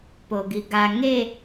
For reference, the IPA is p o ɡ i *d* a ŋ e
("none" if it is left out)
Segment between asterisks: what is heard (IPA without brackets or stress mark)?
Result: ɡ